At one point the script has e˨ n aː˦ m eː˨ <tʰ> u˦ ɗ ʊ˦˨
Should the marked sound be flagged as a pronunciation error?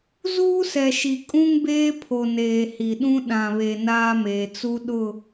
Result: yes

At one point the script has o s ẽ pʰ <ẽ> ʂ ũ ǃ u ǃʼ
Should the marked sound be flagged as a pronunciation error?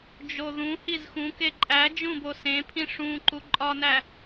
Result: yes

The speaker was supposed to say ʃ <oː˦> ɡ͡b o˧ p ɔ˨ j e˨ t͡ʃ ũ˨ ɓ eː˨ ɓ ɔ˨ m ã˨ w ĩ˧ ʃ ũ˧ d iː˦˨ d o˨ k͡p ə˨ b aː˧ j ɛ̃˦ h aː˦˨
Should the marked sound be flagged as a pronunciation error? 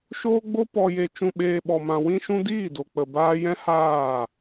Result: yes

